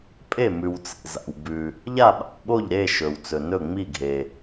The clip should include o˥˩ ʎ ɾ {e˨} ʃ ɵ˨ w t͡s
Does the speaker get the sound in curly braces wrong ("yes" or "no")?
yes